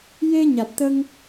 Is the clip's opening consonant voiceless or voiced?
voiced